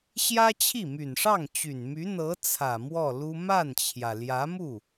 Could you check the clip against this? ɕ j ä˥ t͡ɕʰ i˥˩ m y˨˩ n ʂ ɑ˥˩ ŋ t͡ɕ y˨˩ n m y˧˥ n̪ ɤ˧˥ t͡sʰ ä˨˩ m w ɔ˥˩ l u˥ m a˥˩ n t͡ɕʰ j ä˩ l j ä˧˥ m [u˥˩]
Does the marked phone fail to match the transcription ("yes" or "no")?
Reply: no